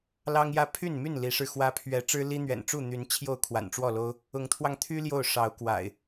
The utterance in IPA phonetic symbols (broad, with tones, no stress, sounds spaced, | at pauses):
l ɑ˦ ŋ j ä˦ pʰ y˥˨ n m y˥˨ n l i˨˦ ʂ ɻ̩˧ x w ä˦ pʰ ɥ ɛ˨˦ ʈ͡ʂ ɻ̩˦ l i˦ n̪ ɥ ɛ̰˨˩ n ʈ͡ʂ u˥˨ n̪ y˨˦ n t͡ɕʰ j o˥˨ ʊ̯ kʰ w a̰˨˩ n ʈ͡ʂ w ɔ˥˨ l o˦ ʊ̯ | ʊ˨˦ ŋ t̪ʰ w ɑ˧ ŋ t̪ʰ y˦ l j o˥˨ ʊ̯ ʂ ɑ˨˦ ʊ̯ k w a̰˨˩ ɪ̯